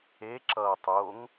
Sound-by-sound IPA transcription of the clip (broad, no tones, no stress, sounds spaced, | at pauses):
e ǁ ʌː tˤ o ŋ